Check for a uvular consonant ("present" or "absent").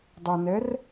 absent